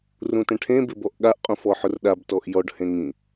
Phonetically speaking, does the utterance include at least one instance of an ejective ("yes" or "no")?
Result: yes